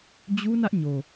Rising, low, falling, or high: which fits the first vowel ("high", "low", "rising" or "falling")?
high